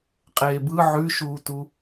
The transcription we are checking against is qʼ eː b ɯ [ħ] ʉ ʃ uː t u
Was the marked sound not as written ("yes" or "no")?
yes